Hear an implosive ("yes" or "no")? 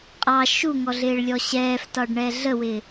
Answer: no